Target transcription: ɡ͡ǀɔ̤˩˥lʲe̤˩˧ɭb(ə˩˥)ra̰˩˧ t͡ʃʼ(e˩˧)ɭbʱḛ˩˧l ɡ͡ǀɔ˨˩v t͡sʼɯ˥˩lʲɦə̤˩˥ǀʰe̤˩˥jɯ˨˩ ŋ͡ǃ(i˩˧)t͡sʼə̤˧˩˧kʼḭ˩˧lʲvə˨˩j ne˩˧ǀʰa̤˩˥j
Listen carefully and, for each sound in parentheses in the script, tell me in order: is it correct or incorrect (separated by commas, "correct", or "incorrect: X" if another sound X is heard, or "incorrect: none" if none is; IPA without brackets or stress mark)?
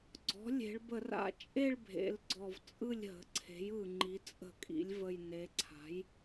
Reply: incorrect: ə˧˩˧, incorrect: e˥˧, correct